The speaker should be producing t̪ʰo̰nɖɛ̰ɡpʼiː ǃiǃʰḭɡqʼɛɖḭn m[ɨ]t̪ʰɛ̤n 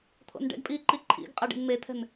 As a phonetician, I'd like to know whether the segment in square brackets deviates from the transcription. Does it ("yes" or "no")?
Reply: yes